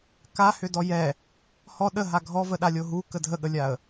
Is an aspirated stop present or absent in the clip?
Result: absent